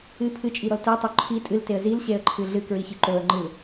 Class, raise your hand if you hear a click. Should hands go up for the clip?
yes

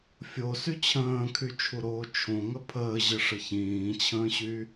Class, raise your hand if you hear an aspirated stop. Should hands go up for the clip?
yes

